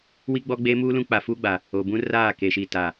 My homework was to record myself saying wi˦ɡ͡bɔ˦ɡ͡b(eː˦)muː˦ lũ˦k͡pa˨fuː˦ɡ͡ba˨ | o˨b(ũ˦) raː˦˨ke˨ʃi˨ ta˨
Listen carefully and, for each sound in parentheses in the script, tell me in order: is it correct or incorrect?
correct, correct

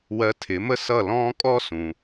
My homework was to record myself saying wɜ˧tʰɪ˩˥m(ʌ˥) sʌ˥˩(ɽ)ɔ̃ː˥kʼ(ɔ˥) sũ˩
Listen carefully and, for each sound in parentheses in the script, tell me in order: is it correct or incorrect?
incorrect: ə˥, incorrect: l, correct

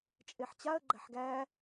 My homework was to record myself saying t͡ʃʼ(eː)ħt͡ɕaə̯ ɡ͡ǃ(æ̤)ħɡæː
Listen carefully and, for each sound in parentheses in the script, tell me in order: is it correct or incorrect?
incorrect: e, correct

